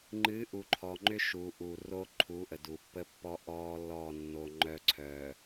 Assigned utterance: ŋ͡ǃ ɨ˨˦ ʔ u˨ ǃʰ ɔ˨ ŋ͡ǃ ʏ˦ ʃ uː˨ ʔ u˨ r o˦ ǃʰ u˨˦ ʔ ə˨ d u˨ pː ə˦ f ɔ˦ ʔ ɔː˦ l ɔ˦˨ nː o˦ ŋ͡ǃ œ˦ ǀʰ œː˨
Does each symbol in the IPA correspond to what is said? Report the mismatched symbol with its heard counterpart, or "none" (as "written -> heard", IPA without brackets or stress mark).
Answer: f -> pː